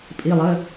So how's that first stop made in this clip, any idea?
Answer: ejective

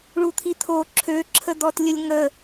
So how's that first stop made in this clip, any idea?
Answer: aspirated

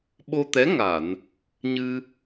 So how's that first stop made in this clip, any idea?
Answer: implosive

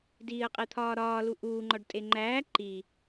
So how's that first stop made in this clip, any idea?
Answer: plain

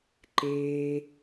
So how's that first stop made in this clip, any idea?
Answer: click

